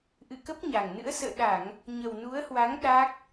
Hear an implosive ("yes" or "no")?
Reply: yes